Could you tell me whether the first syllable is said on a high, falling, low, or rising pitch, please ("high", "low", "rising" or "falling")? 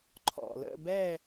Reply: low